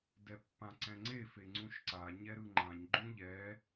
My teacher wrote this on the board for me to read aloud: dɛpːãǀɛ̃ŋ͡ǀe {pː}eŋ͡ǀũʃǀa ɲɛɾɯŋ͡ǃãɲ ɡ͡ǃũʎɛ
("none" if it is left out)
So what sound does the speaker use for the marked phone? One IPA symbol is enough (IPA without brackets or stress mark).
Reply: f